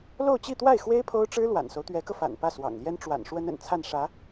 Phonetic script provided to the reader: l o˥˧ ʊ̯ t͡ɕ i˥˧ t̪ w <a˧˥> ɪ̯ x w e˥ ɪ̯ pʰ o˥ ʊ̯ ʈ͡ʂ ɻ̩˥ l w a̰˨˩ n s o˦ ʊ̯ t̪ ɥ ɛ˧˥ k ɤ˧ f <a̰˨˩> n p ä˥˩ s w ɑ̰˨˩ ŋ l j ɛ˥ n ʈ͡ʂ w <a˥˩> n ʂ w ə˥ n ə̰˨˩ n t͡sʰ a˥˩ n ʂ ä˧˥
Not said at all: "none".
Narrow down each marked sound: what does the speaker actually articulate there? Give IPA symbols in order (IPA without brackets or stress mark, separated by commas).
a˥˩, a̰˨˩, a̰˨˩